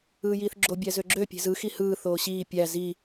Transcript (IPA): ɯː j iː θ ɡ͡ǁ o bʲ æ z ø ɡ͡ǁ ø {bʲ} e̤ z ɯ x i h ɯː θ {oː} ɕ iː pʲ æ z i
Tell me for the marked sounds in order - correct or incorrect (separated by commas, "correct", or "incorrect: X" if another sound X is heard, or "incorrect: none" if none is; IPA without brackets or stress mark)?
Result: incorrect: pʲ, correct